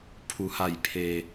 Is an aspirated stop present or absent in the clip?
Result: present